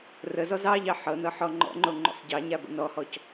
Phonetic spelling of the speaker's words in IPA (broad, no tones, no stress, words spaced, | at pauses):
rəzɔz ɑʎɑ ħɤnɤ ħɔŋ͡ǃɔ̰ŋ͡ǃo ŋ͡ǃo̰sˤɟɑɲa bə̰nɔhɔc